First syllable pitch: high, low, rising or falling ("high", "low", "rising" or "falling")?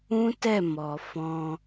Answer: high